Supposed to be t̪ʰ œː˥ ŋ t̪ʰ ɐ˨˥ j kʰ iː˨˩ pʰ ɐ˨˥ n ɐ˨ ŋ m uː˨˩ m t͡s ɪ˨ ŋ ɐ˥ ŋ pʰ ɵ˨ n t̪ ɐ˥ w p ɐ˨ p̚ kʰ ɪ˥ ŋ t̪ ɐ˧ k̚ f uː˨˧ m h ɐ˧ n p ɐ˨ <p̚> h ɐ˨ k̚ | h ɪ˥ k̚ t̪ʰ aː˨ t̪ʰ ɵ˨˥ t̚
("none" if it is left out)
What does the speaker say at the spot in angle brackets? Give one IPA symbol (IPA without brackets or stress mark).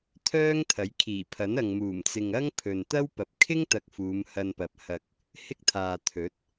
p̚